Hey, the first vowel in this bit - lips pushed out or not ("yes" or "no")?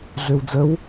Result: yes